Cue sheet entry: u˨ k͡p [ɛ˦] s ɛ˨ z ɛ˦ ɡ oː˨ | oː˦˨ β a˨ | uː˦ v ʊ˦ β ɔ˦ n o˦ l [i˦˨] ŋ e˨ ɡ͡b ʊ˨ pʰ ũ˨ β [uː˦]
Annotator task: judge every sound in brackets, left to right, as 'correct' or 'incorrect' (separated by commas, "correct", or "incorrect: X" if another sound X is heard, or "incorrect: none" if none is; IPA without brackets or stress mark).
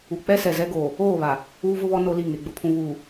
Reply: correct, correct, incorrect: uː˨